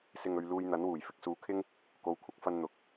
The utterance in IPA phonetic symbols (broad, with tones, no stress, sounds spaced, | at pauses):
s ɪ˨ ŋ ɵ˨ ɥ l uː˧ j n̪ ɐ˨˥ n w uː˨˩ j f ɪ˨ k̚ s uː˨˥ kʰ ɪ˥ ŋ | k o˨˥ w kʷʰ ɐ˧ k̚ f ɐ˧ n n̪ ʊ˨ k̚